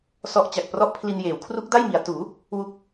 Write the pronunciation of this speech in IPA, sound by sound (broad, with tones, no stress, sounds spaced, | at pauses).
s ɔ˦˥ ʔ t͡ɕ a˨˩ k̚ p r ɔ˥˩ ʔ pʰ l i˧ n j eː˩˦ w kʰ r u˦˥ k̚ d a˥˩ j m i˩˦ a̯ t uː˩˦ | w u˥˩ k̚